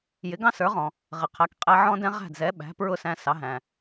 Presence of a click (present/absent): absent